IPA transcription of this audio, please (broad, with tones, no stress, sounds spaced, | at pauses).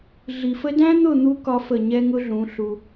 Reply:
ɮ i˨ f ə˦ d æ̃˦ n̪ ʊ˦˨ n̪ u˧ k ɒ˦ f ə˦˨ ɲ ɛ˦ ŋ ʊ˦ ɮ ũ˨˦ ɬ u˧